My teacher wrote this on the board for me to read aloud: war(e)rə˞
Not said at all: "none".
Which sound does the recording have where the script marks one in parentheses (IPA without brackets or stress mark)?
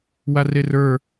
e